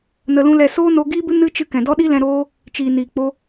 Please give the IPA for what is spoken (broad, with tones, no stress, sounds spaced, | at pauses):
n ə˧ l ũ˦ l ɛ˧ s oː˦ n o˧ ɡ iː˦ b ɨ˦ n ɨ˦ t͡ʃ ɨ˧ k ɛ̃˨ d ɔ˦ ɗ i˦ l ɛ̃˧ ɾ oː˦ | t͡ʃ iː˨ n iː˨ k͡p o˧